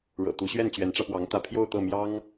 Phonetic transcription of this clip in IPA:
ɻ ɤ̰˨˩ t̪ u˧˥ ɕ ɥ ɛ˥˩ n t͡ɕ ɥ ɛ˧˥ n ʈ͡ʂ ä˧ p w ɑ˧˥ ŋ t̪ ä˧˥ pʰ j o˥˧ ʊ̯ t̪ ɤ˥˩ m j ɑ˥ ŋ

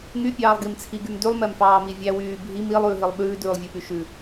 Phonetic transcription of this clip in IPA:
ŋ y pʲ ɑː lˠ ɡ i m t͡sʰ i ɡ y m d y lˠ m ɛ m f ɑː m i vʲ æ w yː bʱ i m i lˠ ʉː ɦ i lˠ ɓ ʉː d ʉː lˠ vʲ ɛ p y ʃ ʉ

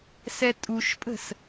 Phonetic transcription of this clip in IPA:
s ɛ tʼ u ʃ pʼ ə̤ s

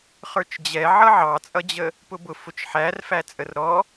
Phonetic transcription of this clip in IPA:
χ ə˞ t͡ʃ d͡ʑ ɛ ʕ ʌ ʕ ɑ t͡sʼ ʌ d͡ʑ ə | p ʊ b ʊ f ʊ t͡ʃ ħ æ r f æ t͡sʼ ə r ɾ ɔ

